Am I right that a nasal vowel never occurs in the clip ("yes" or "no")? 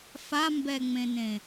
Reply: no